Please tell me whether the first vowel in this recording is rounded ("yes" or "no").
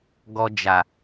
yes